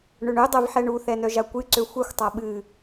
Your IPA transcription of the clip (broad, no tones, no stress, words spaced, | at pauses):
ɳøɳødˤɛv ħɛɳuθɛ nœʒakʷɨǀø xʷɛxʷtˤa ɓɨ